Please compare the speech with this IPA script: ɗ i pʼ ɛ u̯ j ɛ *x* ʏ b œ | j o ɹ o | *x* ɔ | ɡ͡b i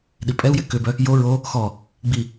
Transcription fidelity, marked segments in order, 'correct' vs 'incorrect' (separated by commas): incorrect, correct